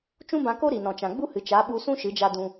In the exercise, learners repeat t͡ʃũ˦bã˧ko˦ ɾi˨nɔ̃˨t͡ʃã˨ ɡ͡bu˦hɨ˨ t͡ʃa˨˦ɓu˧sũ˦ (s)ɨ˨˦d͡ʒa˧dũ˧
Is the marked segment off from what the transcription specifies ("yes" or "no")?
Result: yes